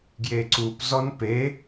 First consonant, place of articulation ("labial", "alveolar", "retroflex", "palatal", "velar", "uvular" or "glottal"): velar